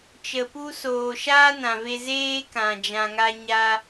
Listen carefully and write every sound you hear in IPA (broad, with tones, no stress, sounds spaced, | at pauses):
t͡ʃ ə˨ p u˧ s oː˨ ʃ aː˦ n ã˨ v e˧ z eː˧ k ã˨ d͡ʒ ã˧ ŋ a˦ ɲ a˧